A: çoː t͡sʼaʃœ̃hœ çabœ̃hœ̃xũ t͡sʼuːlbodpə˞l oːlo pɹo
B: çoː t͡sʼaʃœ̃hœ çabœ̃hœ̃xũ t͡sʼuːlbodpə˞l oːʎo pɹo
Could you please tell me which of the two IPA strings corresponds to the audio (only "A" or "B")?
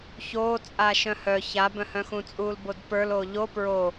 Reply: B